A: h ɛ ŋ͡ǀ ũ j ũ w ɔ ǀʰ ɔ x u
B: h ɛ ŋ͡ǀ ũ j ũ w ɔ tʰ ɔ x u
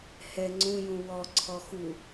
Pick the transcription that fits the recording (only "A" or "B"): A